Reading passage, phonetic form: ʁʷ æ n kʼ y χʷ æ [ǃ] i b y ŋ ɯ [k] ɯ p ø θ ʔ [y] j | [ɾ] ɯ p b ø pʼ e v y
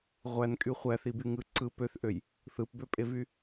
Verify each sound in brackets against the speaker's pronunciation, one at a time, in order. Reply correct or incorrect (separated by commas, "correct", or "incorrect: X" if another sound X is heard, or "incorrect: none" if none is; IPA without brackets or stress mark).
incorrect: θ, incorrect: ǀ, incorrect: ø, incorrect: θ